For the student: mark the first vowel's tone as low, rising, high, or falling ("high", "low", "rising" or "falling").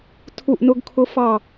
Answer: falling